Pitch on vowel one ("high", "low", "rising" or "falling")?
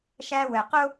high